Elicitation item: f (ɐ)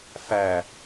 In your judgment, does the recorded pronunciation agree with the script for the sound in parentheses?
no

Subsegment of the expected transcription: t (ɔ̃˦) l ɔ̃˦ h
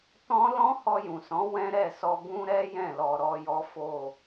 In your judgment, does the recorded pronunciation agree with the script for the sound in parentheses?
yes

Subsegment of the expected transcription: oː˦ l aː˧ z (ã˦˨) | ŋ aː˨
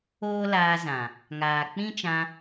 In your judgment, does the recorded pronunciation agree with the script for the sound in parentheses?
no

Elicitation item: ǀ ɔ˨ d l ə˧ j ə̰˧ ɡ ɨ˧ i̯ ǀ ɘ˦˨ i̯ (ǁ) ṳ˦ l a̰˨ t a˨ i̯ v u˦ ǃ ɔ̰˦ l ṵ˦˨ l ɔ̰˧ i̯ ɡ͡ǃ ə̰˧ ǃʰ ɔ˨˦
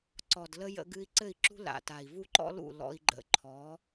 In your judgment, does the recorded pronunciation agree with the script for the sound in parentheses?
yes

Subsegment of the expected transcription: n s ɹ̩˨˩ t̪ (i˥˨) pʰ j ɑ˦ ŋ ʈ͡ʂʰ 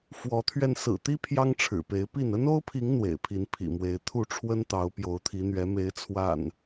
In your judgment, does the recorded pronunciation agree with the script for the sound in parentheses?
no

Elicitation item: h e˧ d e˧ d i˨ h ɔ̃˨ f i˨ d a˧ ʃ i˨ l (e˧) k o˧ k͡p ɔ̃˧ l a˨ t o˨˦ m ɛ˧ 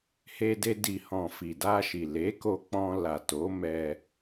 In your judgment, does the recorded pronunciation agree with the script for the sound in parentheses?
no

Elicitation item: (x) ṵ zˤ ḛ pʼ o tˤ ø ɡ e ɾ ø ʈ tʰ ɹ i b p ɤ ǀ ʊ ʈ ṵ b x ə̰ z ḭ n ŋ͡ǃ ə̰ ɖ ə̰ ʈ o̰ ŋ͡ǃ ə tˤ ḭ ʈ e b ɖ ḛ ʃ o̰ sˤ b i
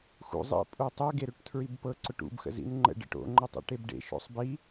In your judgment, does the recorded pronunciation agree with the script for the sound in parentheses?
yes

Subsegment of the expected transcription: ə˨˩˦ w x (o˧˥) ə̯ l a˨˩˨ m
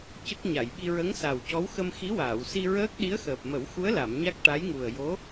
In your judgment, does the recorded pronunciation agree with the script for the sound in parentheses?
no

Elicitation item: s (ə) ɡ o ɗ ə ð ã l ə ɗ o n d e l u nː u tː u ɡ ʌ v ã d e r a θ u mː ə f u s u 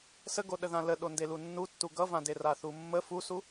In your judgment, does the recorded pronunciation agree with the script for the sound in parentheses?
yes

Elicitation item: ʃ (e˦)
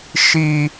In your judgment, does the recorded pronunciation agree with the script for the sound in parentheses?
no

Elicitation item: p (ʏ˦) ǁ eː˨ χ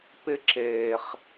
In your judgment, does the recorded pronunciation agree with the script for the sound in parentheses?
no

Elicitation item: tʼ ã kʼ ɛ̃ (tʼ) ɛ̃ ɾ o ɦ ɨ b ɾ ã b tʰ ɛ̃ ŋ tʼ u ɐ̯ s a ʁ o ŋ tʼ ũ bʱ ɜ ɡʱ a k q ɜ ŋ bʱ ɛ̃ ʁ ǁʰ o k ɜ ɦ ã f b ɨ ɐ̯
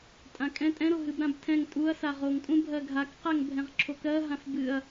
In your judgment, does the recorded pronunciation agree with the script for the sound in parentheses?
yes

